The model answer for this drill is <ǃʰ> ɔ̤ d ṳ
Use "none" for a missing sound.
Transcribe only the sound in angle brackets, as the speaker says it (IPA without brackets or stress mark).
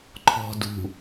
ǃʰ